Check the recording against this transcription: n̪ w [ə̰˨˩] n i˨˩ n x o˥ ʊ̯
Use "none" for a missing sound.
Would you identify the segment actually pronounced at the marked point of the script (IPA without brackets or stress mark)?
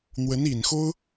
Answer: ə˧˥